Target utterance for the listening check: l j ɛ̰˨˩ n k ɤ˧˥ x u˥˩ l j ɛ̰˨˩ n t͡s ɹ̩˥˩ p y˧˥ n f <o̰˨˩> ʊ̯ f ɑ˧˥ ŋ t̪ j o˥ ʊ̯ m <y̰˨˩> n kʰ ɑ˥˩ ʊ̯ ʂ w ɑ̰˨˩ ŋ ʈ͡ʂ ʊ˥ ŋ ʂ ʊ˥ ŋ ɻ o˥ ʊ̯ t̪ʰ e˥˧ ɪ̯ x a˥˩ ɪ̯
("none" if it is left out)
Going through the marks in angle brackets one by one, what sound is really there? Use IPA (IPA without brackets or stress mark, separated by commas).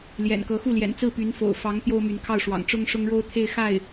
o̰˨˩, y˧˥